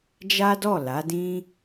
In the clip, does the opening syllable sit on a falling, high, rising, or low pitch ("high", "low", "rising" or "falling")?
high